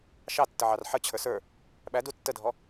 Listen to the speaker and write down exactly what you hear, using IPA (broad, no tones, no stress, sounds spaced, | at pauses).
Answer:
ʃ ɑ tː ə ʕ ɑ r ħ ə t͡ɕʰ ə˞ s ə˞ | ɓ æ d u tː ə dʱ ɔ